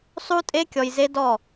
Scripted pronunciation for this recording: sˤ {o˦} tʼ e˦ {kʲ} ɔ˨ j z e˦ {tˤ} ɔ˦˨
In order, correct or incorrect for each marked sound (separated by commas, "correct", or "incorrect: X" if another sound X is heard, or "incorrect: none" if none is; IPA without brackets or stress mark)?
incorrect: u˦, correct, incorrect: d